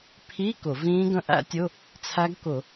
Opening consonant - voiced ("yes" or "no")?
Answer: no